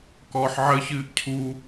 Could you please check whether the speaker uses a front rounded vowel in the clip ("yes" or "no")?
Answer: no